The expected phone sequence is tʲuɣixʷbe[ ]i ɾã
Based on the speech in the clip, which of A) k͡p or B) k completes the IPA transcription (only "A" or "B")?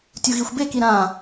B